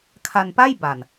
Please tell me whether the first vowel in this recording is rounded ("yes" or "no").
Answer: no